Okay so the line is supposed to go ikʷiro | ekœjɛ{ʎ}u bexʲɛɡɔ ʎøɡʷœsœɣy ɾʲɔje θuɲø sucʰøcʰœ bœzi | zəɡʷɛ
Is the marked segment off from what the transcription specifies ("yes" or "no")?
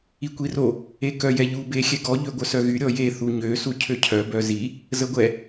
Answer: no